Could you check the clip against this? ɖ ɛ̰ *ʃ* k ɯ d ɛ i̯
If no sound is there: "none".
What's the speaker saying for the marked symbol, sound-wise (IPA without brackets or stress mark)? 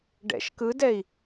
ʃ